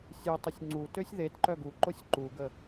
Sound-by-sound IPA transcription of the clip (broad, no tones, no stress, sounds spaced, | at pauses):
sʲ u tˤ o sʲ ŋ͡ǀ u t ø sʲ ð e t ǃ œ ɡ u ǃ o sʲ ǃ u ɡ ə